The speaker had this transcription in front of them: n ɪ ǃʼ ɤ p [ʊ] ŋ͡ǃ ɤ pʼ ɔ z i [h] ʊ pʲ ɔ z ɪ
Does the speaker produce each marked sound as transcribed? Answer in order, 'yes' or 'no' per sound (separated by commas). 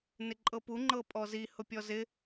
no, yes